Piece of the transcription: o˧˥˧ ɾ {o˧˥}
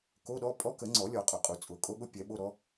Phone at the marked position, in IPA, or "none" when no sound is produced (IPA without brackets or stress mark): ɔ˧˥